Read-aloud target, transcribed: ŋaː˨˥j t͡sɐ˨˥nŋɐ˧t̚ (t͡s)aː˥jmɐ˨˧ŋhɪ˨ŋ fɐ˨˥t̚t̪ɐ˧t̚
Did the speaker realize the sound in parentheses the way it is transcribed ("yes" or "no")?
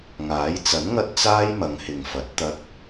yes